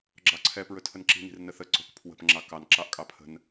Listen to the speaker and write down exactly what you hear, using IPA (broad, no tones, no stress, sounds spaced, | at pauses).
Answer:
ɡ͡ǁ ɑ ǀʰ ɛ p ɹ ɵ tʰ ə n ǁ i̤ n i̤ r n ə θ ə ǀ o̤ k pʰ w ə̤ p ŋ͡ǁ ɑ k ɑ n ǁ ɑ ʔ kʼ ɑ pʰ ə̤ n